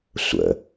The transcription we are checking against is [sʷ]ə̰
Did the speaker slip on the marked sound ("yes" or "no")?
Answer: no